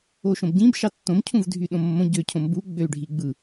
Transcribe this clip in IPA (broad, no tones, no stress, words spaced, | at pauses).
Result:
oʃõbɟĩb ʃɑtːõm cʰũvdʱyɗõmːõ ɟøcʰõmbu ɡ͡bøy̯ɖʱiɡ͡bɯ